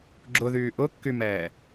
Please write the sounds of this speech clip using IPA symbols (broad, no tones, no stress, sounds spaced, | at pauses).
ɡ͡ǁ ʊ ð yː ʔ ʊ kː y m ɛː